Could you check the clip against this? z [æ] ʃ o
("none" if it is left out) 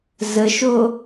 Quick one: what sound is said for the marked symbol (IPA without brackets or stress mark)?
ə